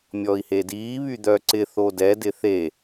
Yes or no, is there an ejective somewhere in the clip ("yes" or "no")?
no